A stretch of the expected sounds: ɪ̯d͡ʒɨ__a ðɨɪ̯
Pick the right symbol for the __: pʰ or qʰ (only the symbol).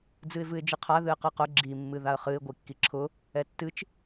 qʰ